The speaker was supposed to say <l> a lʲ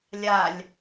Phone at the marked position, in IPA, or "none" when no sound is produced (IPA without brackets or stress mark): lʲ